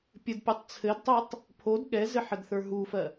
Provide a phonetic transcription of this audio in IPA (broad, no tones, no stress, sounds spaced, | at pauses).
pʲ ɘ d pʲ o tˤ t͡sʰ ɘ d tˤ e tˤ | pʰ o d ɠ ɛ z ɘ ħ ə d θ ə˞ ɦ u f ɜ